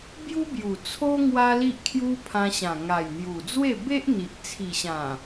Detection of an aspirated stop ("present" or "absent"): present